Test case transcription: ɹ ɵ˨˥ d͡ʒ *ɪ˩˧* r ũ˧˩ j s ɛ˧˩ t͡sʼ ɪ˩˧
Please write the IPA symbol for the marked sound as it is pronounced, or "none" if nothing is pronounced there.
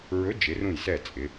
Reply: ɪ˩˧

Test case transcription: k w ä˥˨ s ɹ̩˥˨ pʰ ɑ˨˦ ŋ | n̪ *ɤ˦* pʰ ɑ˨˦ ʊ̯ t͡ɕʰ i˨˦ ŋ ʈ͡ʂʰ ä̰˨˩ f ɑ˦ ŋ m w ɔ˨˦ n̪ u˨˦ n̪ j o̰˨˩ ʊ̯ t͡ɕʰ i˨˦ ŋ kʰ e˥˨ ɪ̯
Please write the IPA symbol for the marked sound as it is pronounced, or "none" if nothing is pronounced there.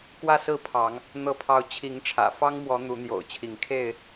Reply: ɤ˨˦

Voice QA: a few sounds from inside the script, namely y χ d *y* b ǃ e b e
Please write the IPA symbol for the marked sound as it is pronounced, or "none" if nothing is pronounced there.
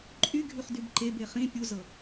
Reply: y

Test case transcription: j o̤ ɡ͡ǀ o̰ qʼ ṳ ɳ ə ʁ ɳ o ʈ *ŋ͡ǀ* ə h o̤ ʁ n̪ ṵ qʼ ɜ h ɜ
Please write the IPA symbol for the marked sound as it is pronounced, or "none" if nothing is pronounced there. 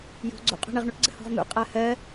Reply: ɡ͡ǀ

